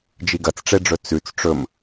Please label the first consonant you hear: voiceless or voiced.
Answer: voiced